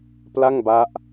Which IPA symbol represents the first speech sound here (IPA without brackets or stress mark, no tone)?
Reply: p